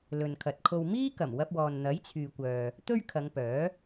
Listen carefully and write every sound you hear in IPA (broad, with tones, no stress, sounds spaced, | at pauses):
l ɵ˨ n kʰ ɐ˨ t̚ kʰ o˧ w m iː˥ k ɐ˨˩ m w ɐ˧ p̚ w ɔː˨ n n̪ ɐ˨˥ j t͡sʰ yː˨ kʷ œː˨ | t̪ ɵ˥ ɥ kʰ ɐ˨˧ ŋ p œː˨˥